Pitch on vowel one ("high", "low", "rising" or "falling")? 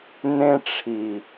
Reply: high